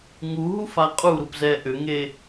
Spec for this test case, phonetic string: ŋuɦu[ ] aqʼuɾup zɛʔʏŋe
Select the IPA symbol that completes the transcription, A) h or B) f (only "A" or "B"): B